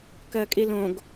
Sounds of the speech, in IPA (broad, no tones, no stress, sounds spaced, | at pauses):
k ɜ kʼ i l õ ɡ